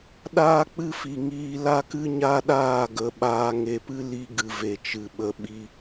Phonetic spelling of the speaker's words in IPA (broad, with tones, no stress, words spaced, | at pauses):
ɗaː˦k͡pɨ˦fi˨ŋiː˧ la˦kɨ˦ɲa˦ɗaː˦˨ ɡə˨˦ɓaː˧ ŋe˨pɨ˦li˧ ɡɨ˨ve˨t͡ʃɨ˨ ɓə˨ɓi˧